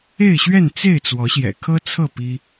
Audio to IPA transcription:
e˥˨ ɪ̯ ɕ ɥ ɛ˥˨ n t͡s e˥˨ ɪ̯ t͡s w ɔ˨˦ ɕ j ɛ̰˨˩ kʰ ɤ˦ t͡sʰ ɤ˥˨ p i˦

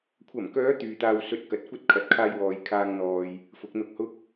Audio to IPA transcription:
kʷʰ ɐ˨˩ m k œː˨˧ t̪ yː˨ t̪ aː˧ w s ɵ˧ t̚ k ɐ˨ t̚ kʷ ɐ˥ t̚ kʰ ɐ˨ t̚ kʰ aː˧ j w ɔː˨ j kʰ aː˧ ŋ n̪ ɔː˧ j | f ʊ˨˥ k̚ n̪ ʊ˧ k̚ h ʊ˥ k̚

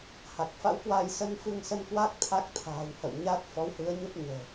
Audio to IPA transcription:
h a˨˩ k̚ f a̰˧˥ w k w aː˧ j s ə˧ n f ɨ˧ ŋ s ə˧ n k w a˦˥ k̚ t̪ʰ a˦˥ k̚ t̪ʰ a̤ː˨˩ w h ə̰˧˨ w ɲ a˦˥ t̚ f ɔ˨˦ w h ɨ˨˦ ə̯ ɲ ə˦˥ p̚ ɲ ə̤ː˨˩

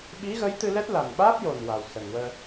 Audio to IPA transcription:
ɓ i˧˥ ɣ ə˧˥ j t̪ ɨ˧ l ɛ˦˥ t̚ l a˨˩ n ɓ aː˦˥ p̚ j o˨˩ n w a˨˩ w s ə˨˩ ŋ w əː˧

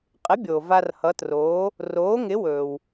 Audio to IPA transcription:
qʼ ɪ˩˥ bʲ oː˩ v a˧ r h ʌ˩˥ t r oː˩˥ | r oː˩˥ ŋ ɪ˩˥ w ɵː˩ w

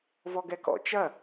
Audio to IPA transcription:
v ɔ ɡ ɛ k ɔ̰ t͡ʃ ɐ

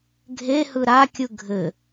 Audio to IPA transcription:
ɡʱ e h ɯ ɾ a kʲ ɯ ɡʱ ɘ

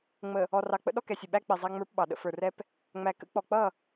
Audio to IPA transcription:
ŋ͡m ə˨ | ɔ˨ r ɑ˨ k͡p ə̰˦ ɗ ɔ˦ k ɛ˨ sʲ ʊ˨ ɓ æ˦ k͡p i˨ zˤ æ˦ ŋ͡m ə˞˦ p ɓ ɑ˨ ɗ ə̰˦ f ə˞˨ r ɛ˦ p | ŋ͡m æ˨ k ə̰˦ k͡p ɔ˨ k͡p ʌ˦˨

